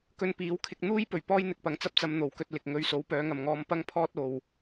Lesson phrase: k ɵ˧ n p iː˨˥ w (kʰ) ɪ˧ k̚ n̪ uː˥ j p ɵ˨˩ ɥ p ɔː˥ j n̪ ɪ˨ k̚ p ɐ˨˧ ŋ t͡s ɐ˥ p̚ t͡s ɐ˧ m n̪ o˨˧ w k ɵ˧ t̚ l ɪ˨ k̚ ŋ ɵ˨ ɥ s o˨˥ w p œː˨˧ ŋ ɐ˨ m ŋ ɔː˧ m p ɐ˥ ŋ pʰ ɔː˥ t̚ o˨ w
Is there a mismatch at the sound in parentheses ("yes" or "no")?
no